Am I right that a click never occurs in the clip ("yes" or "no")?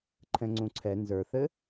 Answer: no